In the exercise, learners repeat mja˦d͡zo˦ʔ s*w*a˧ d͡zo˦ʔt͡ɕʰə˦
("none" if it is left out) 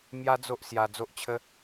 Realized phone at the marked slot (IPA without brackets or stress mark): j